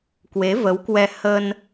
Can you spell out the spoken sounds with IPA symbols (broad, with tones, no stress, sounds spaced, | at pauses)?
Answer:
k w e˨˦ v ə˨˦ w k w ɛ˧ h ə˧ n